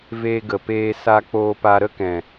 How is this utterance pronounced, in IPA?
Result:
v eː˧ ɡ ə˨ p eː˧ s a˧ k͡p oː˧ p a˧ ɾ ə˦ k ɛ̃˨

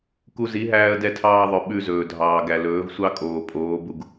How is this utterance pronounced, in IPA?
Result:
k u˧ z i˨˦ ɦ æː˧ ə̯ d ɛ˧ tʰ ɑː˧ ðˤ œ˨ ɓ ʉ˧ z ɵː˨ dʱ ɑː˨ ɡ æ˨ l ɵː˨˦ v sʷ ɑ˦ kʼ oː˨ pʼ oː˨˦ b u˧ ɡ

